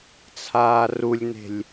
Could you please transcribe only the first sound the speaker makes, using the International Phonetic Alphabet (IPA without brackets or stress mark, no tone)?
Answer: t͡sʰ